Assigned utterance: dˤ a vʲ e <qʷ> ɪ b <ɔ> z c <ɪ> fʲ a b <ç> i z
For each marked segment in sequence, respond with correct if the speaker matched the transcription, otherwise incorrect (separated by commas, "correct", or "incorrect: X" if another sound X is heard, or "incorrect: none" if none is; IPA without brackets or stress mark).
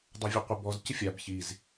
correct, correct, correct, correct